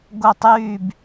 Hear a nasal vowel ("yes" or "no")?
no